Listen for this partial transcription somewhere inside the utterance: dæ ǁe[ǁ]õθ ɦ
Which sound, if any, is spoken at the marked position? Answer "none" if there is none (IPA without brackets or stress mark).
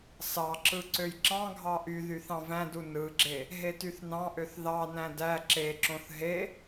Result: ǁ